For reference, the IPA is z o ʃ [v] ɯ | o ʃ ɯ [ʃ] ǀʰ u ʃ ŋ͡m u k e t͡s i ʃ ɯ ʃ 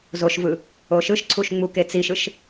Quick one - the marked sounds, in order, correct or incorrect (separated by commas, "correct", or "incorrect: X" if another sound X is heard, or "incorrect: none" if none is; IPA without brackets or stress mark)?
correct, correct